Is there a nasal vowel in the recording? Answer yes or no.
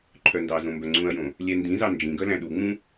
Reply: yes